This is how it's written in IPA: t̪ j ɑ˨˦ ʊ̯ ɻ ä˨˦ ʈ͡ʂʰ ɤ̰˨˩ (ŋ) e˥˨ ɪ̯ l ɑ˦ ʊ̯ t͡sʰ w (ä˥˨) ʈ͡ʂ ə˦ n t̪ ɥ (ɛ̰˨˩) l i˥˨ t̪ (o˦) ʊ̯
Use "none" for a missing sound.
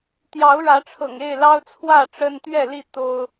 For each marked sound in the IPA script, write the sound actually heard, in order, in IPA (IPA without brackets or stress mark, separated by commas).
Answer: ŋ, ä˥˨, ɛ˥˨, o˦